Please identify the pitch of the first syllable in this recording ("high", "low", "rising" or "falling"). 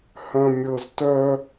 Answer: low